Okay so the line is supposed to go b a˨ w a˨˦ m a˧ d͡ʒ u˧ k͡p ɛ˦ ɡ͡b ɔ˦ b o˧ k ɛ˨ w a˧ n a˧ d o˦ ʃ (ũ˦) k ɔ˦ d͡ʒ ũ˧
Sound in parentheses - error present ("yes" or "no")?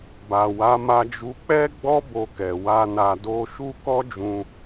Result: yes